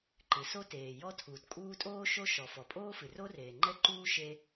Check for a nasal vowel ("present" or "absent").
absent